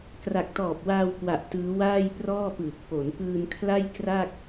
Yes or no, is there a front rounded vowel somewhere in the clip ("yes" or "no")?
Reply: no